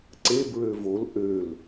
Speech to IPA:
ǀ e b ɹ ø v o l ʔ ø l

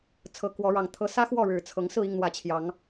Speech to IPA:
t͡sʰ ɤ˨˦ k w ɔ˨˦ ɻ ɑ˨˩ ŋ t̪ʰ ɤ˨˦ s ä˦ x w ɔ˥˨ ɻ ɻ̩˨˩ t͡sʰ ɤ˨˦ ŋ s ɹ̩˥˨ i˥˨ ŋ n̪ w ä˨˩ t͡ɕʰ j ɑ˨˦ ŋ

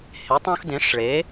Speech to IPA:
h e˩˥ tˤ õ˦ x d ẽ˩˥ ʂ ɭ e˩˥

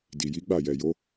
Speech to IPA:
d i˨ j i˨˦ ɡ͡b a˦˨ j ɛ˨ j o˨˦

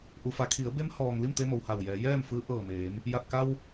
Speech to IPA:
ʔ u˩ f a˩˧ kʰ i˩˧ ə̯ b e˧˥ m h ɔː˩ ŋ l i˥˨ m t̪ e˧ m o˩ w h a˧˩ w j ɛː˩˧ j ɛː˥˨ m f ɯː˧˥ ʔ ɤː˧˩ m eː˩˧ m | j a˧˩ t̚ k a˧ w

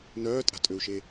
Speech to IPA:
n œː tʼ a̤ tʼ ø u̯ ʃ e

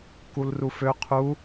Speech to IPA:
k u l r u f ø qʰ u

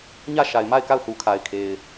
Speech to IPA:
ɲ ä˦˨ ʃ a˨ ɪ̯ m a˦˨ ɪ̯ k a˦˨ ʊ̯ θ u˨ kʰ a˨ ɪ̯ kʰ e˨ ɪ̯

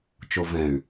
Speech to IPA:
t͡ʃ o v ɛ̃ y̯

